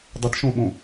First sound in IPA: dˤ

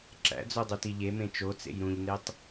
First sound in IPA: ǁ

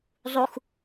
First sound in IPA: zˤ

